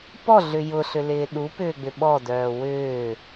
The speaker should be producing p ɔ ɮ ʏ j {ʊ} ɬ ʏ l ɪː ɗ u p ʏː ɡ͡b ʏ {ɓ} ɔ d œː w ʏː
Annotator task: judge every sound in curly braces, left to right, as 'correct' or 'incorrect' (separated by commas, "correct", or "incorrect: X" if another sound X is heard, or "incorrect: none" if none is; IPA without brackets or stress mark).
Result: correct, correct